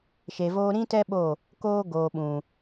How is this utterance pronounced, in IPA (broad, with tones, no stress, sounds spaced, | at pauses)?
ʃ e˨ v oː˧ ɾ ĩ˦ t ɛ˦ ɓ o˦˨ | k oː˦ ɡ oː˨ ɓ ũ˨